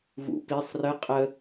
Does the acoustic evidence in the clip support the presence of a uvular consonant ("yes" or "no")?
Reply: yes